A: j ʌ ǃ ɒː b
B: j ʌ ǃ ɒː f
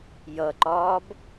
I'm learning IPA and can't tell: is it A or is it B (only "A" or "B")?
A